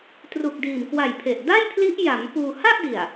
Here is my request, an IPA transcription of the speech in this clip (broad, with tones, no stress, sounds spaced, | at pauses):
t r u˨˩ k̚ d iː˨˩ m k w a˨˩ j pʰ e˨˩ ʔ d a˥˩ j pʰ l i˦˥ ʔ j a˩˦ m p uː˧ h a˥˩ ʔ d i˨˩ a̯